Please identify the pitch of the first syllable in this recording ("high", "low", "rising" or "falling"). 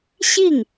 falling